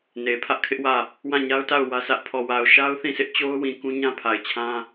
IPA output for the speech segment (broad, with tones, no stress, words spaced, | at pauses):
ne˨pʰä˦ʔkʰɪ˦ʔwä˦˨ | wã˦˨ɲa˦ʊ̯ ta˦˨ʊ̯ wä˦sʰä˦ʔ pʰɔ˨wa˨ʊ̯ʃa˦ʊ̯ θĩ˦˨sʰɪ˦ʔt͡ɕo˦ʊ̯wĩ˨ kũ˦ɲã˦pʰa˨ɪ̯t͡ɕʰã˦